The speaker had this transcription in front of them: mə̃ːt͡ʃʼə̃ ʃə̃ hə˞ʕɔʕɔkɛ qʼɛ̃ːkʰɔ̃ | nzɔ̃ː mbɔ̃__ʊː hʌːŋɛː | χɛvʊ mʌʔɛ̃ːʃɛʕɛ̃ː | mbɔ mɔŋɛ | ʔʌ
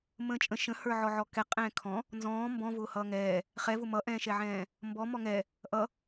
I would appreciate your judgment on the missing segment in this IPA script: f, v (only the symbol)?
v